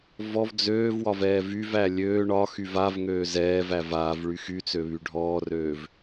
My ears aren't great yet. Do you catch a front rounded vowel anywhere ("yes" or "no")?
yes